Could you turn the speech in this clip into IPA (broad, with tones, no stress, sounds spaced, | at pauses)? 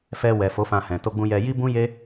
f ɛ˧ w ɛ˨ f o˨˦ f ã˧ h ɛ̃˨ t o˧ ɡ͡b ũ˧ j ɛ˧ j i˦ b ũ˦ j e˦